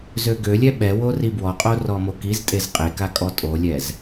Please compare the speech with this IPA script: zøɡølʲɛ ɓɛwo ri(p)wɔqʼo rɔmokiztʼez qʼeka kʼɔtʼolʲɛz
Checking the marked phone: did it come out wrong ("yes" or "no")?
yes